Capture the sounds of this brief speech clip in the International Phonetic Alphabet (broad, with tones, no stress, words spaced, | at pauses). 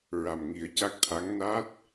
ɹa˨˩mŋi˨˩˦ə̯ca˦˥k̚t̪ʰa˧˥ŋ na˦˥t̚